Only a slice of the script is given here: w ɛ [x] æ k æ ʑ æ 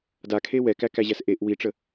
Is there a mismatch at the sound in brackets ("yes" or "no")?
yes